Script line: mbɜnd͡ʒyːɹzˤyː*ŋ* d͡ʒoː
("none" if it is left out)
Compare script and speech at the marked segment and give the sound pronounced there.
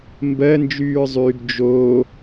ɡ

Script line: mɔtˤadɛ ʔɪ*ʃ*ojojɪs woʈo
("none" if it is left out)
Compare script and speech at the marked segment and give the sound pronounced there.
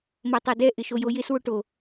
ʃ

